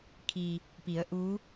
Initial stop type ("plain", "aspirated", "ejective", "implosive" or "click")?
aspirated